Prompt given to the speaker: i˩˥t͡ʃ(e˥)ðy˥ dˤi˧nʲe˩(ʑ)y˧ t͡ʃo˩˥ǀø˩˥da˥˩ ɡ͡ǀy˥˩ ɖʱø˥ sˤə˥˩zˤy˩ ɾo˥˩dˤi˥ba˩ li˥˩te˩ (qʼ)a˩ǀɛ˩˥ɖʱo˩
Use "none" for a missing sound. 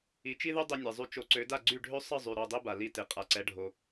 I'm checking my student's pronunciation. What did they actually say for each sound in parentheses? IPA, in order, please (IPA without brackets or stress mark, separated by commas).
i˥, zˤ, qʼ